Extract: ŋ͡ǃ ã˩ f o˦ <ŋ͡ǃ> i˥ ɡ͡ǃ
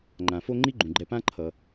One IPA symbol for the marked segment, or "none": ŋ͡ǃ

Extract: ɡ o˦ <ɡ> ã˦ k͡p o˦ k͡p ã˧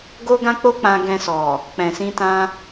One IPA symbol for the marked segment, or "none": ɡ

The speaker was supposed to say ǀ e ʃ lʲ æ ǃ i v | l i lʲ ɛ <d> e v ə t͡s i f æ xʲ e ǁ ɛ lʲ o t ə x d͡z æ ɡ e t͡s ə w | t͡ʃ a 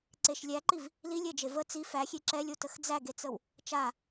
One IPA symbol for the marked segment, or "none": d͡ʒ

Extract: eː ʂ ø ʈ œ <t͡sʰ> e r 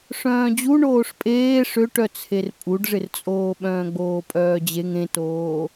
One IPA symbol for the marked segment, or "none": t͡sʰ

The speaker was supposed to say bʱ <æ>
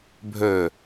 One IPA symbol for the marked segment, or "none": œ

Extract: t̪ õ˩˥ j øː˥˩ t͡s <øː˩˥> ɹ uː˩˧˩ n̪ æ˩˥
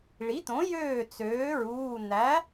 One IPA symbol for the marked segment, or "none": øː˩˥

